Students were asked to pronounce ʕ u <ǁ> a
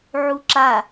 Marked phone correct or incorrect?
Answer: correct